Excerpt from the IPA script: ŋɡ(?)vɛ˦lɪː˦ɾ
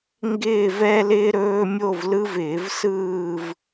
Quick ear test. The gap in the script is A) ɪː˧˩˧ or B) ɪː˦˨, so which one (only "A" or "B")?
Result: B